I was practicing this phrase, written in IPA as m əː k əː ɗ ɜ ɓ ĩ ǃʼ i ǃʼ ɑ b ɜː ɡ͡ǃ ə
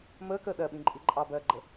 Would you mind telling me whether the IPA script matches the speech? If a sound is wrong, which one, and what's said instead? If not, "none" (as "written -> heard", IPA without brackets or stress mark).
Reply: none